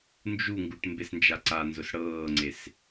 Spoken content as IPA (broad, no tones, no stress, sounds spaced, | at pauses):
n d͡ʒ u ŋ ɡ u ʈ m b e s n d͡ʒ a ǀ a n z ʊ s ɽ ɤː ŋ͡ǀ e s